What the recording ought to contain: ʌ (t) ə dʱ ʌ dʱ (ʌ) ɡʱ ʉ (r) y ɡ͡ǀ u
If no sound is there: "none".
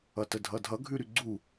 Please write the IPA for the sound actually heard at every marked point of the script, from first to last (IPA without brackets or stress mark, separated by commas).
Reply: t, ʌ, ɾ